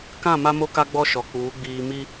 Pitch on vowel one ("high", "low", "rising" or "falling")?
falling